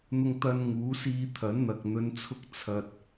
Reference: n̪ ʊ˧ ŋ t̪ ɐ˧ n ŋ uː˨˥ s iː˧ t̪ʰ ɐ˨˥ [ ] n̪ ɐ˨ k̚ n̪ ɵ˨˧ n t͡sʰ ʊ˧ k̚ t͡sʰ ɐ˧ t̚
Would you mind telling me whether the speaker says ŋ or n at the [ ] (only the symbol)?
n